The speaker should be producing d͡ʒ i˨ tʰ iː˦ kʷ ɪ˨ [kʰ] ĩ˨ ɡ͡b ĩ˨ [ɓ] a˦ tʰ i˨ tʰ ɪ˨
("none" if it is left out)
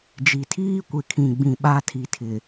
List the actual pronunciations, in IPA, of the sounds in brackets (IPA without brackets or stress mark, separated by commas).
kʰ, ɓ